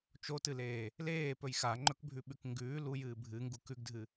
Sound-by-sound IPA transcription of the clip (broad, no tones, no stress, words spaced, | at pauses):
t͡ʃotɨleː | leːpɵj xaŋ͡ǃɵkbʱʉɓʉk ŋɡʉː lujɨː bʱɨŋɡu kʉɡdʱɨ